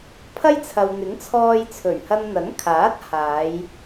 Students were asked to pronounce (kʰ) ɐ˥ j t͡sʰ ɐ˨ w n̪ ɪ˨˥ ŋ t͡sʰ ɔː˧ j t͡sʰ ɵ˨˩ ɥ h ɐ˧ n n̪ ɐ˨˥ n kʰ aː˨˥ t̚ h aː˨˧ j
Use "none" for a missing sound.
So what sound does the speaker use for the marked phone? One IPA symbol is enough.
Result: pʰ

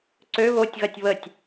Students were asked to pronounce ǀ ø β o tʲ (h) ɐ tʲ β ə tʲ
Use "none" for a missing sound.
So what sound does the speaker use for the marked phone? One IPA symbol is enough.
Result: ɣ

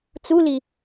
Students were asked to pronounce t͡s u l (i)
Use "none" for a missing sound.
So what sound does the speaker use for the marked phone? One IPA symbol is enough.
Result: i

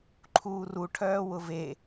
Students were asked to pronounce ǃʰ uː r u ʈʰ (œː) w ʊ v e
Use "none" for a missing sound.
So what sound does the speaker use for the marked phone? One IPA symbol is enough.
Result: œː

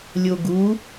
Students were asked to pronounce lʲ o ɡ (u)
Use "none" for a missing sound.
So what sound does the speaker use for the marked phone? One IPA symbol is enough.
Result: u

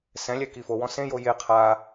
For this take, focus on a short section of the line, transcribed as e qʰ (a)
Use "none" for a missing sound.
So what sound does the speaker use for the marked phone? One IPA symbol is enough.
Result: a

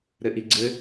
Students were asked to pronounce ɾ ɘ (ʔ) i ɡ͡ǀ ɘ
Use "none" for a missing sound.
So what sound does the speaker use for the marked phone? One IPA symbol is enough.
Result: ʔ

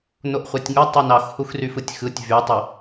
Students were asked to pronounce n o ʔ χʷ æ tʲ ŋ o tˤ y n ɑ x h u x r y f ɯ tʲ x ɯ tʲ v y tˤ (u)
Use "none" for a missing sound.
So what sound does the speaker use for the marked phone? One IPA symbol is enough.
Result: ø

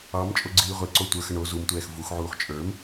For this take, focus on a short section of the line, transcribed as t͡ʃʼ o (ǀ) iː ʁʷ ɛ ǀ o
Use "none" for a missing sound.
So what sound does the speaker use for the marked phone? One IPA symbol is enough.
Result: ɡ͡ǀ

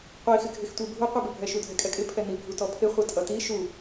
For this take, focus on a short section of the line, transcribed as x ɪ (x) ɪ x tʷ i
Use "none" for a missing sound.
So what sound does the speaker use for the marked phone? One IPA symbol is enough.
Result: ɡʱ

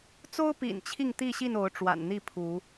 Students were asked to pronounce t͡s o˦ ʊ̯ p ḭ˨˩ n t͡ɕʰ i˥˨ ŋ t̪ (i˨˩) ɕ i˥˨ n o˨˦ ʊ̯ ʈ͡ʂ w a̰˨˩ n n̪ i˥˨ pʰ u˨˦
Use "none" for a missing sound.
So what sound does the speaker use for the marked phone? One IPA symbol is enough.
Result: i˥˨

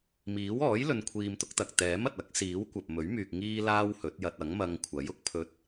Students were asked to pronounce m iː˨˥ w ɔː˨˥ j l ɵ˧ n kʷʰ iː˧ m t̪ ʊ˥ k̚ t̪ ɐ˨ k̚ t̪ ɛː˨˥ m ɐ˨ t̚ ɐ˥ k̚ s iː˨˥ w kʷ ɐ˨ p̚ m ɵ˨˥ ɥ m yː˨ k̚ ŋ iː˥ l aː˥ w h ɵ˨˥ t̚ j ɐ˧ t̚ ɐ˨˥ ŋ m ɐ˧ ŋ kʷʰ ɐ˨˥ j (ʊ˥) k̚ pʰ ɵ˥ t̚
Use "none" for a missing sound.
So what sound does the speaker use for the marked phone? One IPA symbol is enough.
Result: ʊ˥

